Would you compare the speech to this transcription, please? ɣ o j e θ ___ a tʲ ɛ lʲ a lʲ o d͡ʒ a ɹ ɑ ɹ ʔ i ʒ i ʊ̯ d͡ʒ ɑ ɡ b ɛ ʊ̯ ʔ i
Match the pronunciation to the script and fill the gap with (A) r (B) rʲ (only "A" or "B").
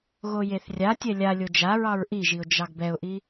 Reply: B